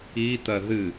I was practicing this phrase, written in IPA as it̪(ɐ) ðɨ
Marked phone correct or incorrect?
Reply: correct